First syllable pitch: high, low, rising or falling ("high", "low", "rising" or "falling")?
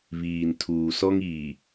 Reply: low